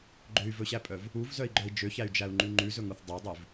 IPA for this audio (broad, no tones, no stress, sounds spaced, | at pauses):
ɡ͡ǃ ø y̯ v ɵ ɕ æ pʼ œ v | u v z œ i̯ ɡ͡ǃ œ i̯ d͡ʒ ø ç æ y̯ d͡ʒ æ u̯ ŋ͡ǃ ʉ ŋ͡ǃ ʉ z ɵ ŋ u θ dˤ ɑ dˤ ʉ v